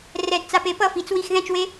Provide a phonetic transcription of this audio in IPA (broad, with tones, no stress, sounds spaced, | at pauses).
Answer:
r ɛ˧ d t͡s a˧ p e˧˥ p ʌ˥˧ f i˩˥ t͡s w i˥˧ x ð ɛ̃˥˧ t͡ʃ w e˧˥